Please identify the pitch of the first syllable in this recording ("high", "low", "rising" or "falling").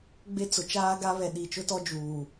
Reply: high